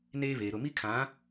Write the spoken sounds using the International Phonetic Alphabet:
n eː˦ β eː˨ ɾ ʊ˦˨ m i˦ kʰ ã˨˦

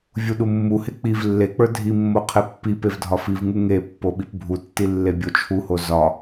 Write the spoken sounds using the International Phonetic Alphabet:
vʲ u ɗ u mː u h e k͡p i v lː e k͡p ə˞ dʱ i mː o qʰ e pː i p e v dʱ ɒ f i v ŋ u ŋ e pː o ɓ i p bʱ u tː i lː e bʲ o t͡ʃʰ u h o z ɒ

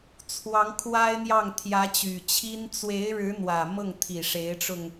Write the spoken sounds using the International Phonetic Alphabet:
t͡sʰ w ɑ˧˥ ŋ kʰ w a˥ ɪ̯ n̪ j ɑ˥˩ ŋ t̪ʰ j ä˧˥ t͡ɕ y˨˩ t͡ɕʰ i˥ n t͡s w e˧˥ ɪ̯ ɻ ɻ̩˧˥ n̪ w ä˨˩ m ɤ˥˩ ŋ t̪ʰ i˨˩ ʂ e˧˥ ɪ̯ ʈ͡ʂ ʊ˧ ŋ

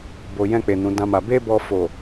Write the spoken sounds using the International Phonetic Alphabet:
b o˨ j ɛ̃˧ k͡p e˨ n ũ˨˦ d ã˦ m a˧ b e˦ b ɔ˧ f o˨

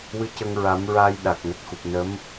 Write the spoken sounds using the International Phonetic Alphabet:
w ɨ˧ c ə˧ ŋ ɹ a˨˩˦ m ɹ aː˧ j ɗ a˨˩ k̚ n ə˨˩ k̚ x u˨˩ p̚ n ə˧˥ m

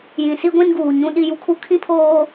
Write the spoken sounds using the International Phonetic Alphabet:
j ĩ˨ s i˦ ɡʷ ĩ˦ n ɡ uː˨ ɲ ũ˦ ɗ i˦ j u˦ kʰ u˦ kʰ ĩ˦ pʰ oː˦

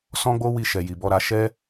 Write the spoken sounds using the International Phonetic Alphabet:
s ɔ̃˦ ɡ͡b o˦ w i˧ ʃ ɛ˨ j i˨ b ɔ˧ ɾ a˧ ʃ ɛ˦

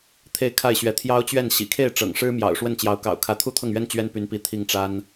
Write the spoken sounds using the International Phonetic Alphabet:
t̪ʰ e˥˧ ɪ̯ kʰ a˥˩ ɪ̯ ɕ ɥ ɛ˧˥ t̪ʰ j ɑ˥ ʊ̯ t͡ɕ ɥ ɛ˥˩ n ɕ ḭ˨˩ kʰ e˥˩ ɪ̯ ʈ͡ʂ ɤ̰˨˩ ŋ ʂ ɻ̩˥ m j ɑ̰˨˩ ʊ̯ ʂ w ə˥˩ n t͡ɕ j ɑ˧˥ ʊ̯ k ɑ̰˨˩ ʊ̯ kʰ ä˧˥ t̪ʰ u˥ t̪ʰ ɤ˥˩ ŋ ɥ ɛ˥ n t͡ɕ ɥ ɛ˥ n p y˧˥ n p i˧˥ t̪ʰ i˥˩ ŋ ʈ͡ʂ a˥ n

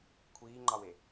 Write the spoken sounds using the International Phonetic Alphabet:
kʷʰ iː ŋ͡ǃ ɑ w e

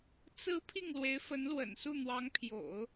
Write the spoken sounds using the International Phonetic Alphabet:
t͡s ɹ̩˧˥ pʰ i˥˩ ŋ l w e˧˥ ɪ̯ f ə˧˥ n l w ə̰˨˩ n s u˥˩ n̪ w ɑ˧˥ ŋ pʰ j o̰˨˩˦ ʊ̯

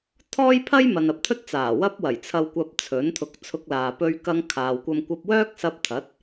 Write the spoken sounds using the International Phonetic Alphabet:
t̪ʰ ɔː˥ j pʰ ɐ˥ j m ɐ˨ n ɐ˨ p̚ t̪ʰ ɵ˥ t̚ t͡s aː˨˩ w ɐ˥ p̚ w ɐ˨˩ j t͡sʰ ɐ˧ w kʷ ɐ˧ p̚ t͡sʰ ɵ˨˥ n t̪ʰ ʊ˧ k̚ t͡sʰ ʊ˧ k̚ l aː˨ p ɵ˧ ɥ k ɐ˧ ŋ kʰ aː˨ w kʷ ɐ˧ m kʷ ɐ˧ p̚ w œː˥ k̚ s ɐ˧ p̚ t̪ʰ ɐ˨˥ t̚

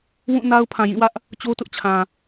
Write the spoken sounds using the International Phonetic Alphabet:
w ũ˦˨ n a˦ ʊ̯ pʰ ã˨ j ĩ˦˨ w ä˦ ʔ | t͡ɕ o˦ t ʊ˦ ʔ t͡ɕʰ ã˨

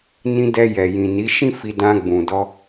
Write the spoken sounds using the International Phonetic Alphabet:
n ĩ˧ d ɛ˧ j ɛ˨ j ĩ˨ n i˨˦ ʃ ĩ˦ f i˧ d ã˧ ɡ͡b ũ˨ d ɔ˧

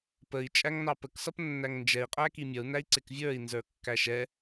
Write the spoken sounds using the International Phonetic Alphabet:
p ə i̯ t͡ʃʼ æ ŋ n ɑ p ə k s ʌ p nː æ ŋ n d͡ʒ ɛ i̯ qʼ æ k i mʲ ʌ u̯ n æ i̯ ǀ ɪ k vʲ ə˞ i̯ n z ə˞ kː æ ʃ ɛ

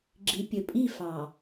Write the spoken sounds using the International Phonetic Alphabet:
ɡ͡ǁ i˨ pʲ ɵ˨ pʼ i˦˨ f ɑ˨

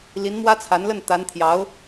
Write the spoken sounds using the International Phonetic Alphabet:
l i˧˥ n m w ä˥ t͡sʰ a˧˥ n l ə˥˩ n t̪ a˧˥ n t̪ʰ j ɑ˧˥ ʊ̯

